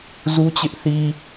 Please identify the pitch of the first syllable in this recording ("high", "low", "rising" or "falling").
high